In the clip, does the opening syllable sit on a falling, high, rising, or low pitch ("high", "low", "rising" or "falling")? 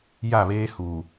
falling